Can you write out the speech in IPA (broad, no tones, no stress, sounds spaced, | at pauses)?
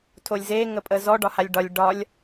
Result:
tʰ o lʲ z e ŋ ə pʼ ə z ɔ ɖ ɒ h a lʲ ɖ ɒ lʲ ɖ ɒ lʲ